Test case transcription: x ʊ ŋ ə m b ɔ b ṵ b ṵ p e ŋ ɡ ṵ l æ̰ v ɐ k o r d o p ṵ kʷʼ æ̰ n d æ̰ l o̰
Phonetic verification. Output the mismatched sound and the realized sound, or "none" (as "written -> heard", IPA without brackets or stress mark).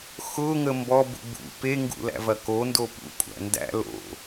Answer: r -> n